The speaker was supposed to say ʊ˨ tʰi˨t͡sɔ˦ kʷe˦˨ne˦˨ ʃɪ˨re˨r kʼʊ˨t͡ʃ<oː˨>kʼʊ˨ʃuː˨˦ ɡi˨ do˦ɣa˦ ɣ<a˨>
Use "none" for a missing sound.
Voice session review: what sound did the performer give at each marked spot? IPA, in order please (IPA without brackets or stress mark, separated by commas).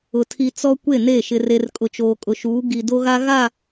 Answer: oː˨, a˦˨